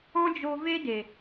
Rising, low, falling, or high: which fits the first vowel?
high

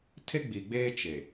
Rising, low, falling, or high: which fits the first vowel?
high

